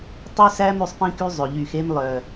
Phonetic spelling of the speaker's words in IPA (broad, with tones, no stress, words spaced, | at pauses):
tˤy˦sæ˦m ʉ˦sˤpĩ˦ky˦zˤø˨ ʎy˨xe˦m lˠœ˨